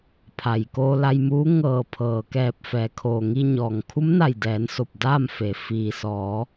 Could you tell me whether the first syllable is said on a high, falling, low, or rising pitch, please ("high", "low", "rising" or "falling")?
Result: low